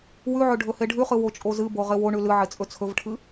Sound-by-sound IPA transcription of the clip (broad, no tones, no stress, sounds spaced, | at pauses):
w ʉ ʕ ɵ ɖʱ ɵ h e ɖʱ ʉ χ ɨ w o t͡ʃʼ o z ɨ b o ʁ e w o ɳ ʉ l ɨ ʕ e t͡sʼ ɵ t͡sʰ ɵ v ʈʰ ɨ